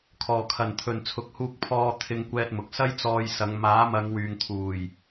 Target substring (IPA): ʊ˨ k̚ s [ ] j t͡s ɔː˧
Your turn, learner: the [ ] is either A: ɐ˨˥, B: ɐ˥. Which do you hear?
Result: B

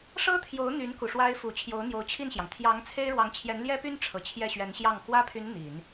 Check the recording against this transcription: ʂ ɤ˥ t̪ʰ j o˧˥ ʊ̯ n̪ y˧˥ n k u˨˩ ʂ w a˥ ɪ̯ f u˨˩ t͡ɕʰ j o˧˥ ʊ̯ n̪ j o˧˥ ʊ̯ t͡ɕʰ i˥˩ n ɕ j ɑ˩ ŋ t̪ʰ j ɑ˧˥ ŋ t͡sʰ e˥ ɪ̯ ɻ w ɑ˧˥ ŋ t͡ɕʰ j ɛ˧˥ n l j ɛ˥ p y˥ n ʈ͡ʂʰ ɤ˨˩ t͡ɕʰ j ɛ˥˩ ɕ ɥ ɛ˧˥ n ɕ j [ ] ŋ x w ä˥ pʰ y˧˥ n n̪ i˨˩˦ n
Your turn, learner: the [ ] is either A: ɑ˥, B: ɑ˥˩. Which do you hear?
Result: B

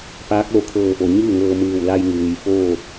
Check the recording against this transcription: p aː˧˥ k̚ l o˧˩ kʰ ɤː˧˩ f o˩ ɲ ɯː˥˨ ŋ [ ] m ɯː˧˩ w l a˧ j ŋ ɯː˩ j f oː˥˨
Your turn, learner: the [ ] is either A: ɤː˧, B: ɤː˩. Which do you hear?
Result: A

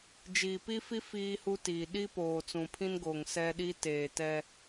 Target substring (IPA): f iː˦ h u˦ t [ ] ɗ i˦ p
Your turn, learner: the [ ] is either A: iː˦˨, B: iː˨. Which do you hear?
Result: B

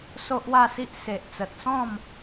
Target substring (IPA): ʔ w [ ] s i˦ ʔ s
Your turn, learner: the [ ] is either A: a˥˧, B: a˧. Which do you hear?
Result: A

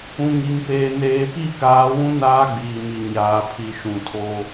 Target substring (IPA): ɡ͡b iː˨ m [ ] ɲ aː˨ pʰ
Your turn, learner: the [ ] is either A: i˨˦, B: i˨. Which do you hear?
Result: B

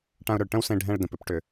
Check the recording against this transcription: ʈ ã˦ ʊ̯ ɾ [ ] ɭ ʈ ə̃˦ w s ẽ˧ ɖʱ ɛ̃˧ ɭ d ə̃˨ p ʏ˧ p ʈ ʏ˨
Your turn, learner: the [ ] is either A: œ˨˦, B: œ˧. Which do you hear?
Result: B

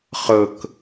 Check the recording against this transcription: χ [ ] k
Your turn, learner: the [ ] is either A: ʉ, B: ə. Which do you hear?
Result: B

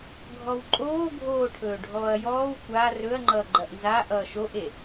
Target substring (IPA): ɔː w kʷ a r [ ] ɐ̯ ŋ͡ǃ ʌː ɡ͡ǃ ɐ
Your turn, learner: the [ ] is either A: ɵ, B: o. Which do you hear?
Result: A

